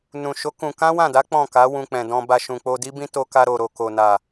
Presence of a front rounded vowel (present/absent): absent